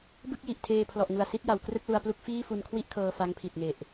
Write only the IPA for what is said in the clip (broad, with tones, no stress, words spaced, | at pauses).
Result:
bɯ˥˩k̚ji˨˩ʔ tʰeː˧pʰlɔ˨˩ʔŋu˨˩a̯ si˦˥t̚ja˩˦w krɯ˥˩k̚lu˧a̯plu˥˩k̚ fiː˥˩fu˧nkʰwi˥˩ʔkʰɤː˧ fa˦˥ŋpʰi˨˩t̚ŋe˨˩ʔ